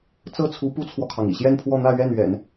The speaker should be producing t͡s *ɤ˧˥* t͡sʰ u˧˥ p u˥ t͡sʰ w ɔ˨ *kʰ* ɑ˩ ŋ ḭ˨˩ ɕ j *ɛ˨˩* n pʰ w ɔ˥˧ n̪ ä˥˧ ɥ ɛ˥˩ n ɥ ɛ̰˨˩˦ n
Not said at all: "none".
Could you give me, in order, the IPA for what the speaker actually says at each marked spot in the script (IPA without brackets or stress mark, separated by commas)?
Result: ɤ˥˩, kʰ, ɛ˥˧